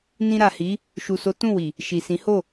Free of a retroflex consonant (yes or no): yes